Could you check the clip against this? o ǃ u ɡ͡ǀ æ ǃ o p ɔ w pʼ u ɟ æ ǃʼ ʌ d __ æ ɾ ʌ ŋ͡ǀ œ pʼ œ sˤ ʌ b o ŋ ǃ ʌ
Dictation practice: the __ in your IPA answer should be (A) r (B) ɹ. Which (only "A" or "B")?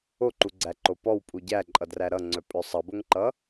A